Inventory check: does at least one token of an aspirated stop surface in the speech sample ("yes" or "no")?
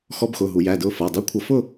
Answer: yes